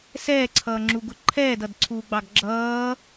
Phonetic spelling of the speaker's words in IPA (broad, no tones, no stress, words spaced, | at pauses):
sɛːǀʰʌːŋ͡ǁuɡʊ ǃʰɛːdʌdǀʰuːɡ͡bɑɡ ɡ͡ǁʌː